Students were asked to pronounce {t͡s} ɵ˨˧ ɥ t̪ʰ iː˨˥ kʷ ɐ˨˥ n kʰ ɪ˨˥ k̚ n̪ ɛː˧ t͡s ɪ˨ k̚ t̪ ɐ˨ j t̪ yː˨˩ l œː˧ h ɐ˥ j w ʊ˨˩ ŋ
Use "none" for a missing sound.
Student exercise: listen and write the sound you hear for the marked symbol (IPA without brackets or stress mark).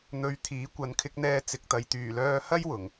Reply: n̪